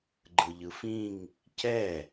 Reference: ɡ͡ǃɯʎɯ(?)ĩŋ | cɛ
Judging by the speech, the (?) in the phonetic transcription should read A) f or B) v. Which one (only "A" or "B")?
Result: A